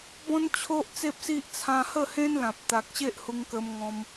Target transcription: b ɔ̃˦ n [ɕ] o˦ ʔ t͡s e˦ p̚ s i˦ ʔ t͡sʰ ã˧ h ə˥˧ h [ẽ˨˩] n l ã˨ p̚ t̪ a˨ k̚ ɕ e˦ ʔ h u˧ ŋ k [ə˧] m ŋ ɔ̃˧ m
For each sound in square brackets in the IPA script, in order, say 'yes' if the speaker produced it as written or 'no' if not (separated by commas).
no, no, yes